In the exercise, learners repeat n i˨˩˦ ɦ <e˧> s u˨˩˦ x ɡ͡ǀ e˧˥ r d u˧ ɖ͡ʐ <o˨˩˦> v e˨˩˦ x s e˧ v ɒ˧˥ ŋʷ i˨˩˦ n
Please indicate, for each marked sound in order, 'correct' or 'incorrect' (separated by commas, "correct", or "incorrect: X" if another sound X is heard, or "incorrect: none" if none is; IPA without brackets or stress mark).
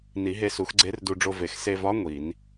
correct, incorrect: o˧